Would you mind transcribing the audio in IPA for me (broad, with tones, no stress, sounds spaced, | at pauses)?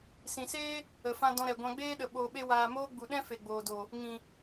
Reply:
s ĩ˨ s eː˦ | ə˨ f ã˧ d ɔ̃˧ ɾ ɛ˨ ɡʷ ã˧ ɡ͡b eː˦ ɗ ə˨ ɓ oː˧ ɓ e˦ w aː˧ m oː˦ ɡ͡b u˨ ɗ ɛ̃˦ f e˨ ɡ͡b oː˨ d o˨ | ŋ ĩ˨